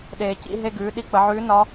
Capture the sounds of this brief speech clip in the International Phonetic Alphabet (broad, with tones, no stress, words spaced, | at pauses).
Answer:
ɗeː˩ cḭ˧ɦe˧ɡʉː˩˧ ɗi˧k͡pə˩˧ʕʉː˧˥ nɒ˧˥